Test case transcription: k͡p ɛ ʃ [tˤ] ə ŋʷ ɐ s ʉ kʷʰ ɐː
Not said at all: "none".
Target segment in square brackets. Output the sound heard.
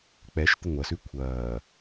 t̪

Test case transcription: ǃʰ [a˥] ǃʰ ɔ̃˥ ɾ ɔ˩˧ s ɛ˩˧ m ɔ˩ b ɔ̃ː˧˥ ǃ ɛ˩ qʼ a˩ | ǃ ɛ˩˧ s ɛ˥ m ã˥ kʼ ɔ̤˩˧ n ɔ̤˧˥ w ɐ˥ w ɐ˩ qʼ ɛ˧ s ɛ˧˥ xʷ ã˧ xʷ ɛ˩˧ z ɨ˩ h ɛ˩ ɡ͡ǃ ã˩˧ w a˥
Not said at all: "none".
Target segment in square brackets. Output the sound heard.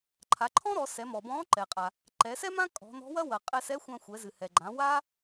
a˩˧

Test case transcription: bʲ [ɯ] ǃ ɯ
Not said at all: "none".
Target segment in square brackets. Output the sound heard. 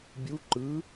u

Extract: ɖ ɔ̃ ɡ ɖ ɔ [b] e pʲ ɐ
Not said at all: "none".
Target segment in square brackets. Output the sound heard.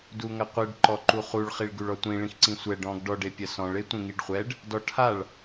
ɖ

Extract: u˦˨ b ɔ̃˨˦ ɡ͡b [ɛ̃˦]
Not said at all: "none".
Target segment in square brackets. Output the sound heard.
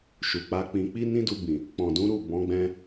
ɛ̃˦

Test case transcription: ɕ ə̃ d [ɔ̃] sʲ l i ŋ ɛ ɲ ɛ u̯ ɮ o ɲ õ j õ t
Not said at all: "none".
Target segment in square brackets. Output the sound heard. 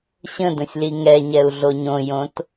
ə̃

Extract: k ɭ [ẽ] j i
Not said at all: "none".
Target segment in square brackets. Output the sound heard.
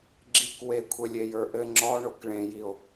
ẽ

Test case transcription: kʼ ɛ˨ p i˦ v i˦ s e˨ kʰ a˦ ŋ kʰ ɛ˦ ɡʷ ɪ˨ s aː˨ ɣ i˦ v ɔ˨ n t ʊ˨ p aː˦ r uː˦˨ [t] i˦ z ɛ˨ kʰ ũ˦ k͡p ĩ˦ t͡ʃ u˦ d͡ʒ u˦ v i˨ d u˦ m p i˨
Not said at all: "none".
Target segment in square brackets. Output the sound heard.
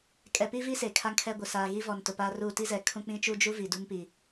t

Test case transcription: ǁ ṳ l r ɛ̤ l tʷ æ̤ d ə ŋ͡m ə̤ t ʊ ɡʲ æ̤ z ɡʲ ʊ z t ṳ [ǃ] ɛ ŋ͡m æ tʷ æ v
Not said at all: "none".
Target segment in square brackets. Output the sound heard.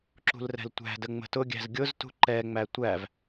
ǃ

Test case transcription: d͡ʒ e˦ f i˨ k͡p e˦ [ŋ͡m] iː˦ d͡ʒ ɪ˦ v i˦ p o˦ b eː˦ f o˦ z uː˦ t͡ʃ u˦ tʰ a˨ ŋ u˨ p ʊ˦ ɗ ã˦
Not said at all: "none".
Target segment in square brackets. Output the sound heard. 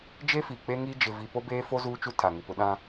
ŋ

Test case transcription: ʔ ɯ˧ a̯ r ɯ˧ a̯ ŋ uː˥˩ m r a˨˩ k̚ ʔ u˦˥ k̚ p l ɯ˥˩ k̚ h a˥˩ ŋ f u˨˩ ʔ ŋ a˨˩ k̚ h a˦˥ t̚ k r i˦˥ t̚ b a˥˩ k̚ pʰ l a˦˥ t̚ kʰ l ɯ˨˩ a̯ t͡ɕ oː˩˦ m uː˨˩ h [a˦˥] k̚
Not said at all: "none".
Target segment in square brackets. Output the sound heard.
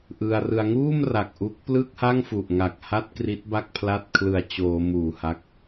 a˦˥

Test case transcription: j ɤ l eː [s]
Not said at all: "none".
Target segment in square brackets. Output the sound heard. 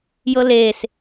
s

